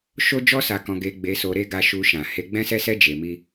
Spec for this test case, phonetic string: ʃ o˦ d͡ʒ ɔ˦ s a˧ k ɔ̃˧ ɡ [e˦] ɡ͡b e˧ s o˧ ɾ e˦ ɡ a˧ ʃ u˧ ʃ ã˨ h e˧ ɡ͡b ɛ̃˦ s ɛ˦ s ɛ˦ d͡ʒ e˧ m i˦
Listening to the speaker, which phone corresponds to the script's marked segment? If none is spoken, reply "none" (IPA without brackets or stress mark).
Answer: e˧